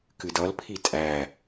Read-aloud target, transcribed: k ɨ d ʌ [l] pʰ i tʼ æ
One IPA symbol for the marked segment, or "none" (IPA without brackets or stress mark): l